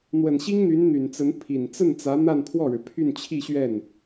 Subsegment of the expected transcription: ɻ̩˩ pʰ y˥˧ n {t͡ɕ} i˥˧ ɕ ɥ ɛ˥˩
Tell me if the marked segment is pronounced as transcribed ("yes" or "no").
no